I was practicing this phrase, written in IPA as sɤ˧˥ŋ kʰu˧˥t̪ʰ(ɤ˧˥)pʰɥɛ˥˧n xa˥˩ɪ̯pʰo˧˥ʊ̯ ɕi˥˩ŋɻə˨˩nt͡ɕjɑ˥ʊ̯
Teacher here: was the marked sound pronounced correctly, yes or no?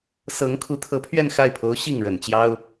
yes